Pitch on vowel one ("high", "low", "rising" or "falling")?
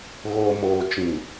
low